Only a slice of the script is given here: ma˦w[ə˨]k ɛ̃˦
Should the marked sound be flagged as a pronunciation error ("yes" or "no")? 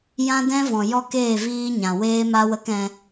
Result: yes